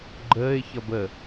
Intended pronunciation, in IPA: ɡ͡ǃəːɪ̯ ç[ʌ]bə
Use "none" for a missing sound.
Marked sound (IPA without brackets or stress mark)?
ʌ